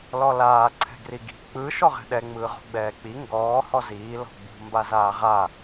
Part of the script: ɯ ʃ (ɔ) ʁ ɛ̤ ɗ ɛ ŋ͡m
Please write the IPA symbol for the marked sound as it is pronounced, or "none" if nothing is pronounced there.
ɔ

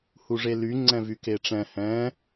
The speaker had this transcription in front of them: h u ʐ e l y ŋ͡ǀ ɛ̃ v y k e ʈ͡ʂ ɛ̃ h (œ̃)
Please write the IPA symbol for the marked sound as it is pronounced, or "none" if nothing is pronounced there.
ɛ̃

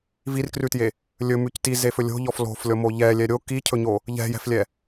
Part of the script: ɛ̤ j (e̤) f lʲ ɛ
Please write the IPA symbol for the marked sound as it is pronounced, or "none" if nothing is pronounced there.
ɛ̤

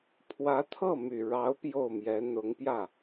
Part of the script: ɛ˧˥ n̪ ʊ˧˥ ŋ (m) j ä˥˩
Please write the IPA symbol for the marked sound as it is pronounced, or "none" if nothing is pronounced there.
p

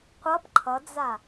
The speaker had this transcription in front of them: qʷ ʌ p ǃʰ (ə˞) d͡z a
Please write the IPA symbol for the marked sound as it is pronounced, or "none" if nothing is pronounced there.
ʌ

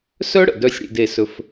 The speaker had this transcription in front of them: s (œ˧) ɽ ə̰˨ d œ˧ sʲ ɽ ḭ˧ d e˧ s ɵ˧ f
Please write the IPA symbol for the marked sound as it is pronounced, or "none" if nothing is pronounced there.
œ˦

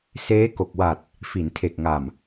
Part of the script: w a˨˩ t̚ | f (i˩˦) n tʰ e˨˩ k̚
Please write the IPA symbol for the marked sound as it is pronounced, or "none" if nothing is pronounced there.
i˩˦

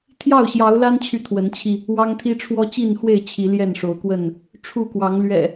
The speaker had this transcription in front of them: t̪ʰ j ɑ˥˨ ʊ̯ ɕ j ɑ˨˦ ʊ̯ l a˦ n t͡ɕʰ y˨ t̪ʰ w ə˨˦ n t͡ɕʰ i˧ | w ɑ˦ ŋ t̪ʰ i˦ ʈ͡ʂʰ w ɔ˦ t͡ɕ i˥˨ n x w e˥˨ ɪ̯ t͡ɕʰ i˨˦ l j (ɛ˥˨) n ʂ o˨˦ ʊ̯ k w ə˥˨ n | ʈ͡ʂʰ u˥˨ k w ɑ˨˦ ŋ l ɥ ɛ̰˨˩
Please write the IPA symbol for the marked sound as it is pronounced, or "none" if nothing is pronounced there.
ɛ˥˨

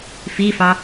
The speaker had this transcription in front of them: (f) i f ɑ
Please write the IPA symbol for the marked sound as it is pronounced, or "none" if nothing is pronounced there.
f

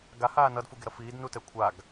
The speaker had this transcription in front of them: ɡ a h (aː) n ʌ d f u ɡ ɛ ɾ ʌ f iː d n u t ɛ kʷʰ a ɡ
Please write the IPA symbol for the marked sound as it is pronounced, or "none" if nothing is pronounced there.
aː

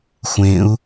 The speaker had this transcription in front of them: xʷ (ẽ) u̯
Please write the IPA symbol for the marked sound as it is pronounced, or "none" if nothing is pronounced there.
ẽ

